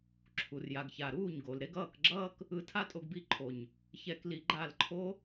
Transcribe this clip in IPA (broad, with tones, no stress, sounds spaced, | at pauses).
ǁʰ u˨ r j a˨ ɡ ç a˨ ɾ uː˦˨ ɲ ɡ o˨ l ɾ e˧ ɡ ʌː˦˨ k ɡ͡ǁ ʌː˦ k | ɯ˧ tʰ a˦ tʼ o˧ ɡ b i˦˨ ǃʰ o˨ ɲ | ç ɛ˧ k l i˧ ɡ͡ǃ a˦˨ l ǃʰ o˦